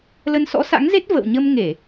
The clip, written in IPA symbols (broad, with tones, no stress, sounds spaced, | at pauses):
l ə˧ n s ɔ̰˧˥ s a̰˧˥ ŋ z e˦˥ t̚ v ə̰˧˨ w ɲ ə˧ m ŋ e˧˩˨